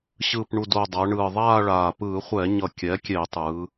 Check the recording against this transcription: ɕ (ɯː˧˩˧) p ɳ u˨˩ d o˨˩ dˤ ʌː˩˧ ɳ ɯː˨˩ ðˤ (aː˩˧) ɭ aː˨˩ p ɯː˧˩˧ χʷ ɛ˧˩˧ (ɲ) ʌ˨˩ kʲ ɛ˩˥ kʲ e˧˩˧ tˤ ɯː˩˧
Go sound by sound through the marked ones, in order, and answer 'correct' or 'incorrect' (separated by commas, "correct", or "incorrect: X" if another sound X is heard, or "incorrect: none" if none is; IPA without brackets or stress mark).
incorrect: ɯː˨˩, incorrect: aː˥˧, correct